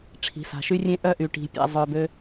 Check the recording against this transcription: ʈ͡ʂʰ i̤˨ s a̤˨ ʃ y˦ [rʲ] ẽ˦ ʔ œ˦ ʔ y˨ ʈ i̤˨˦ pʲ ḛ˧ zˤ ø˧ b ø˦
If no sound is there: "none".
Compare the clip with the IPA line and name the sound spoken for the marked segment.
rʲ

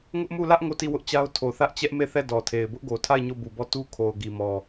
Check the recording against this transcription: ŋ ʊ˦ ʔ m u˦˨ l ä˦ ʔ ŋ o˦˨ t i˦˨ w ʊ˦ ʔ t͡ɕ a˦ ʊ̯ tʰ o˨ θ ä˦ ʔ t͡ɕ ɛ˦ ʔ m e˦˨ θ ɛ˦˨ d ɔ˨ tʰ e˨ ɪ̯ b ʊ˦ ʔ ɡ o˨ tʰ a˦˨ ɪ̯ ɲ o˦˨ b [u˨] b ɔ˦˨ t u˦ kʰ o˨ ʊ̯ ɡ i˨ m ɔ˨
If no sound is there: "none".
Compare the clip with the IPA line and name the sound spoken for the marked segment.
u˨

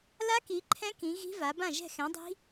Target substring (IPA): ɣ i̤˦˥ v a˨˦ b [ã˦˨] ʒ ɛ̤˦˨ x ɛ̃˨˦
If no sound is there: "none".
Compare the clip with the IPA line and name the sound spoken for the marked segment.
ã˦˨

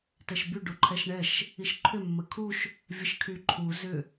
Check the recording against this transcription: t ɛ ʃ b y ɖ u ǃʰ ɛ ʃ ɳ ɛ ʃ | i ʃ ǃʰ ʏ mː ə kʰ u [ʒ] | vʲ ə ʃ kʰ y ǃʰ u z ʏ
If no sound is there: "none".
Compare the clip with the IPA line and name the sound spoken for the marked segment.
ʃ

